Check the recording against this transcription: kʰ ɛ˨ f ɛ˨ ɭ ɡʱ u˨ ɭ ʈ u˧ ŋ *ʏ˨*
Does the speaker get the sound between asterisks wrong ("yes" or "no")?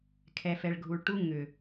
no